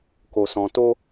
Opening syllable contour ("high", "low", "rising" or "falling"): low